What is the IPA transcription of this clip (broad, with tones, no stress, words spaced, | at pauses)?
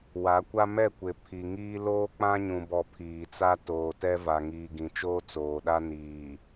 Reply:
wa˨˦kʷa˦ mɛ˦˨kʷɪ˨ pʰi˨ŋiː˦ loː˦k͡pã˦ɲũ˨bɔ˨ pʰiː˨t͡sa˦ toː˨tɛ˦ va˨ ŋiː˨ɡĩ˨ t͡ʃoː˦ t͡soː˨ɗa˦ niː˨